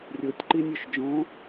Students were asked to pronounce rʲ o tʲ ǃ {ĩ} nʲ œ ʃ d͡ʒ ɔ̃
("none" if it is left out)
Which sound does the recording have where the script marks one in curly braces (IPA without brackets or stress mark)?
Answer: i